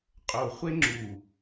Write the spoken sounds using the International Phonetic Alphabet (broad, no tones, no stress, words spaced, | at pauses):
qʼoχʷe ŋ͡ǁu